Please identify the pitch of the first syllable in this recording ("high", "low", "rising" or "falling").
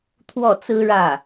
falling